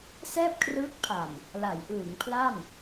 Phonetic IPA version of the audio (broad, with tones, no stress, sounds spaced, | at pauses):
s ɛː˥˩ p̚ kʰ r ɯː˦˥ k̚ pʰ a˨˩ m | l a˩˦ j ʔ ɯː˩˦ ŋ pʰ l a˥˩ m